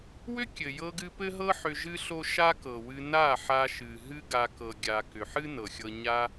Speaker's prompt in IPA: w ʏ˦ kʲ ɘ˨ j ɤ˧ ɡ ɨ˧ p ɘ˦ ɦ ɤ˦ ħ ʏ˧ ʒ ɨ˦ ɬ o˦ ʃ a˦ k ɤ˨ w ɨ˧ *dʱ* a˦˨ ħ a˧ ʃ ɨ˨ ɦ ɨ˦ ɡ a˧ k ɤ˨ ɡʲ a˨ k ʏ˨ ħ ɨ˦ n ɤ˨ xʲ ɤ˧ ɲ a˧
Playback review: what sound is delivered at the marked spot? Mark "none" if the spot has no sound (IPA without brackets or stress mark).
n